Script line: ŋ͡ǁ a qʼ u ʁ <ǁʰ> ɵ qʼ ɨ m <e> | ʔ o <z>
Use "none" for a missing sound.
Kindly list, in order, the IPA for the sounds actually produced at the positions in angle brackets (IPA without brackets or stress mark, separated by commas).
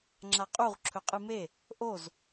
ǁʰ, e, z